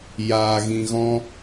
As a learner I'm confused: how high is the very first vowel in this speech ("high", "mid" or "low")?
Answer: low